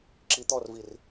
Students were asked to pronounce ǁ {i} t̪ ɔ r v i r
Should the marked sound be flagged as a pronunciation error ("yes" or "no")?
no